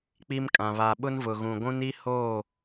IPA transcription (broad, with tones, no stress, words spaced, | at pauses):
k͡pi˦mkʼã˨ βa˨ɓʊ˦nvʊ˨ɣũ˨ ɡʷũ˦ni˦hoː˦˨